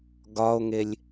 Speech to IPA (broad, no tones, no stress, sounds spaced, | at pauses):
ɡ ɒ o̯ ŋ e lʲ